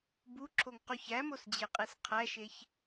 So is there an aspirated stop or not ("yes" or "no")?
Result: yes